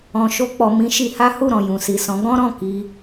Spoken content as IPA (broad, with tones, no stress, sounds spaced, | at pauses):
ɔ̃˨ ʃ o˧ k͡p ɔ˨ m ĩ˨˦ ʃ i˧ h a˦ h u˦˨ ɾ ɔ̃˨ j ũ˨ s i˨ s ɔ̃˨˦ ɡ ɔ̃˦ ɾ ɔ̃˦˨ k i˧